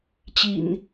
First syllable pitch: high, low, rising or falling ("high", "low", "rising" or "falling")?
low